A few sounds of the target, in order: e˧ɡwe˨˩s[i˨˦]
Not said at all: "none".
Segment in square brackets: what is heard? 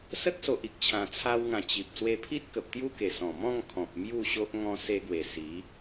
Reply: i˨˦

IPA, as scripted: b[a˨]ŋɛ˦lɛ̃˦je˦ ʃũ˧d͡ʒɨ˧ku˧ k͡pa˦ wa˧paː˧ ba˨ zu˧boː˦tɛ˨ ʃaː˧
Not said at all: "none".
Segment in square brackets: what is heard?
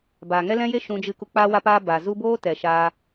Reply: a˨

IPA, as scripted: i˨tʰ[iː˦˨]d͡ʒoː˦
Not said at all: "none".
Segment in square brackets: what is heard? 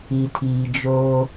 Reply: iː˨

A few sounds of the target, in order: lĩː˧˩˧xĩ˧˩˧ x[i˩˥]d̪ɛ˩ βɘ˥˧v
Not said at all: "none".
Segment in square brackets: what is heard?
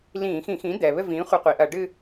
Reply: ĩ˩˥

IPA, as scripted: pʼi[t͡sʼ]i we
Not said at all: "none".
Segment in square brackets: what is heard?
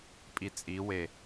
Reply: t͡sʼ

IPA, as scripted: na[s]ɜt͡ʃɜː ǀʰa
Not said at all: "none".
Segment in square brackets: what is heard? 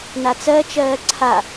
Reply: t͡s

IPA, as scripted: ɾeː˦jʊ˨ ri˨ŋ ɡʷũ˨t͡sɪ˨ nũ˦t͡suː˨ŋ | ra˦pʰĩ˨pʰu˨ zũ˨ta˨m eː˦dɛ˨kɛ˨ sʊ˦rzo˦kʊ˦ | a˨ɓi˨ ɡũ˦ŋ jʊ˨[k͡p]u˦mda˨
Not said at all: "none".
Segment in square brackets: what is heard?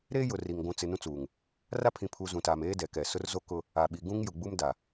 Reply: ɡ͡b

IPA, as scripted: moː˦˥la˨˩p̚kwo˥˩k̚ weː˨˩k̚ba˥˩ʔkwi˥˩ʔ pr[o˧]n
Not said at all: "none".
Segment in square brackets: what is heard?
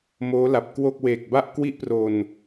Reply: o˧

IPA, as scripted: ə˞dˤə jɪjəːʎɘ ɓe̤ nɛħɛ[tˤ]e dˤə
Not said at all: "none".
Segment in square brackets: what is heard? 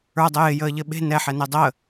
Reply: n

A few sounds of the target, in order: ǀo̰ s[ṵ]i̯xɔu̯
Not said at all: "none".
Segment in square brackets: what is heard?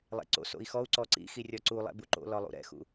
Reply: o̰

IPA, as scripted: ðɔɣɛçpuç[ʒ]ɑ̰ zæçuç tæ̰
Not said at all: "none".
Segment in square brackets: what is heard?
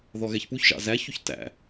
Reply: ʒ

